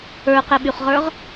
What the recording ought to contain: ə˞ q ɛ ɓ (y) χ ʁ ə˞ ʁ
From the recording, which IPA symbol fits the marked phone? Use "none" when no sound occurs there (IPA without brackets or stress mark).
y